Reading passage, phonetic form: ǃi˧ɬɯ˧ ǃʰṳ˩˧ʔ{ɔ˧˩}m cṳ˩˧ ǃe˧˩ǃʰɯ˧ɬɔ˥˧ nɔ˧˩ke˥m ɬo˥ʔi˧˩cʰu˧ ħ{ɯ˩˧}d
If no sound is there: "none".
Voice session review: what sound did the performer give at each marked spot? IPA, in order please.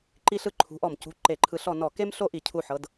ɔ˧˩, ɤ˩˧

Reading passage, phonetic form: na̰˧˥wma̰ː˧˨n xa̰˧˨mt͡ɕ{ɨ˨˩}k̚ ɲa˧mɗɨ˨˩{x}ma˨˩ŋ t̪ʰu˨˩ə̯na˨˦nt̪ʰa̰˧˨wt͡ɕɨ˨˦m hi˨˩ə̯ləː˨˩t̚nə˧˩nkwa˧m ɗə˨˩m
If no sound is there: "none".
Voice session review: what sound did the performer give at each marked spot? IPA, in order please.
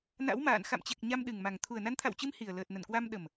e˨˩, ŋ

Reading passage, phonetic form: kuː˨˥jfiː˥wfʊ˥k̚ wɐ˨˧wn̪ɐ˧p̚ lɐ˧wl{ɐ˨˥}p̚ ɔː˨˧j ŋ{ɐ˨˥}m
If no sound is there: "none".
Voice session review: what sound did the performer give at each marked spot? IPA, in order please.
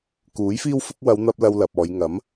ɐ˨, ɐ˨˥

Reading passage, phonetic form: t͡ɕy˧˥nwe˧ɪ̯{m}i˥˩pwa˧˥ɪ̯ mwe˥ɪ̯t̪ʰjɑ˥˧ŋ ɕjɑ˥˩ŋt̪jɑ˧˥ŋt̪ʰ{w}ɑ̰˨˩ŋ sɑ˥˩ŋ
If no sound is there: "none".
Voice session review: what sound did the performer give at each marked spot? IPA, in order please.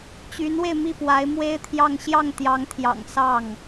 m, j

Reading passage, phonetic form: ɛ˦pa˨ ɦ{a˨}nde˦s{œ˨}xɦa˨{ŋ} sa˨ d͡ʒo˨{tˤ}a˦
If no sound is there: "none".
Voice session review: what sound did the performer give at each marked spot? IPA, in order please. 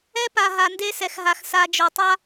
a˨, ɛ˨, x, tˤ

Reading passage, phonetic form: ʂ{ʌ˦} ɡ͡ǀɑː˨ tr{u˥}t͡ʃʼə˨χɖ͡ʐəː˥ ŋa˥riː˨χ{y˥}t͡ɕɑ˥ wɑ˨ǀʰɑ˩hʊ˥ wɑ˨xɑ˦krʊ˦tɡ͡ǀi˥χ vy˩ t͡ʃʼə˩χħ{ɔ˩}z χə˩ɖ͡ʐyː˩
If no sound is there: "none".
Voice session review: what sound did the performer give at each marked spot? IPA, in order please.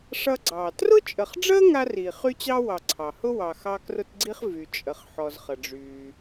ʌ˦, ʊ˥, y˥, ɔ˩

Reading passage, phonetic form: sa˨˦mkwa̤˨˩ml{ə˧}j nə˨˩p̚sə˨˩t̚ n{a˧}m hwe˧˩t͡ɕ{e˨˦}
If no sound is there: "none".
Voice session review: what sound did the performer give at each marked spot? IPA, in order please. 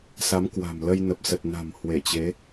ə˧, a̤˨˩, e˨˦

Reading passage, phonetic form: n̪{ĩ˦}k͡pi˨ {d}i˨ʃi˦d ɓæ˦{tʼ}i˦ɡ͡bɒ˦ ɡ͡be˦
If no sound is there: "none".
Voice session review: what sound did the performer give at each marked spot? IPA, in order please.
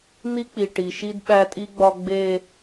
i˦, ʈ, tʼ

